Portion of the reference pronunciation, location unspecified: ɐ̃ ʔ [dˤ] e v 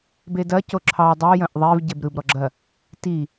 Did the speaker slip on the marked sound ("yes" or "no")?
yes